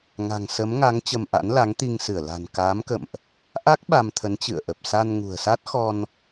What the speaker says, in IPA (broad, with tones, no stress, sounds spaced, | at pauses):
ŋ a̤˨˩ ŋ s ə˨˦ m ŋ a˨˦ ŋ t͡ɕ ə˧ m ʔ a̰˧˥ n l a˨˦ ŋ t̪ i˧ ŋ s ɨ˧˩ ə̯ l a̤˨˩ n k aː˨˦ m k ə̰˧˨ m ʔ | ʔ a˦˥ k̚ ɓ a˧ m t̪ʰ ə˨˦ n t͡ɕ ɨ̰˧˨ ə̯ ʔ ə˨˩ p̚ s a˧ n ŋ ṳ˨˩ ə̯ s a˦˥ t̚ x ɔ˧ n